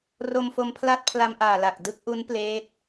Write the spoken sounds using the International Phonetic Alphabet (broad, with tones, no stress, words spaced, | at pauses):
ro˧mfo˧mpʰla˥˩t̚ pʰla˧mʔaː˨˩ la˨˩k̚ dɯ˦˥k̚ʔu˦˥n pleː˦˥t̚